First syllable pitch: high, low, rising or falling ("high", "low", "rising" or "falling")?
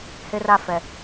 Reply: high